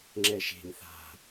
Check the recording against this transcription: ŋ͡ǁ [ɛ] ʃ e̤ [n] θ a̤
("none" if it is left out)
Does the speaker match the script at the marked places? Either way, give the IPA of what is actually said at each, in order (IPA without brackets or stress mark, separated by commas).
ɛ, n